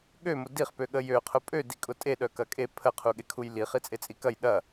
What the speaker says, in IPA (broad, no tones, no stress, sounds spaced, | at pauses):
ɠ ø m ʊ d i χ p ø ɠ ə j ø qʰ ʊ pʼ ø d i kʼ ʊ tʼ e ɗ œ k ɐ kʼ e pʰ ə qʰ u ɠ e kʰ u j l i χ i t͡sʼ e t͡sʼ i k ɐ j ɗ ɐ